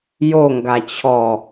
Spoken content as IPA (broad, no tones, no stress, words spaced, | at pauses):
joŋɡa t͡ɕʰɔ